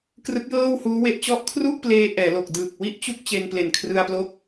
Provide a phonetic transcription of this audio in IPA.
krɯ˦˥k̚jɤː˥˩whuː˦˥we˦˥ʔ t͡ɕɔ˦˥ʔkʰru˥˩ʔpleː˧ ʔɛː˩˦lo˨˩k̚ dɯː˨˩k̚wi˥˩ʔt͡ɕu˥˩k̚ t͡ɕe˧nple˨˩n kʰrɯ˧a̯plo˦˥k̚

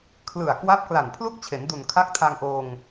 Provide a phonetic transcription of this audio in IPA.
kʰlɯ˨˩a̯kwa˦˥p̚kla˨˩n pʰlu˥˩k̚t͡ɕʰe˩˦ndu˨˩n kʰa˦˥k̚tʰa˧ŋʔoː˧ŋ

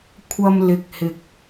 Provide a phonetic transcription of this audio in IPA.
kʷʰɐ˧m lɪ˨k̚hɪ˨k̚

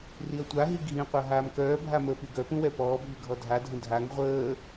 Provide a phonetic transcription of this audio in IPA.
riɐ̯tʷaɦi ɡʱĩqʷa ɦaːmkœːbʱa məːpyɡœpũ wɛpɔːbʱy ɡʱɔdʱadʱə̃ dʱaŋ ʁʷəː

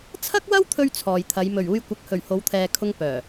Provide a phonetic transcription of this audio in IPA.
t͡sʰɐ˥k̚wɐ˥w t̪ʰɵ˥ɥt͡sʰɔː˨jt̪ʰɐ˨˧j mɵ˨˩ɥuː˧jkʷɐ˨˥k̚hɵ˨˩ɥ ho˨˧wt̪ʰɛː˨kʰʊ˧ŋ pœː˨˩

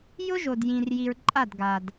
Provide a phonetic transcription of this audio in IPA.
jʊ˦ʒo˨djĩ˨rji˨ɹ ǃʼa˦˨dɡa˨d

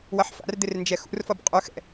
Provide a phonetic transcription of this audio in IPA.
wʌħfa̰rd̪ɪr nd͡ʒɛxṵrfʌb qʼɵxɛ̰

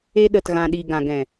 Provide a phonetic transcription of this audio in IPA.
e˧ɗə˨tɣã˨ ɗi˨ ɡã˨ɡɛ̃˨

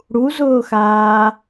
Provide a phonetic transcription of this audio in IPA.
ɽuzʊːxaː

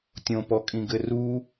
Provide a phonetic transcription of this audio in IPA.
tʲõpɔkʼĩɡɘ ru

